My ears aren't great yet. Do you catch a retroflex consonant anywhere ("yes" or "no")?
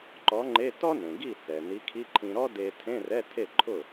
no